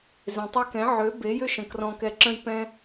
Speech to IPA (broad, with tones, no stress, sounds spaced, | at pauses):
z ẽ˨ tˤ i˧ k ɛ̃˨˦ ʕ ø˨˦ b e˨˦ j ʏ˦ ʃ ə̃˨ k r ɔ̃˧ k ɛ˧ ǁ ə̃˦ j p ɛ̃˦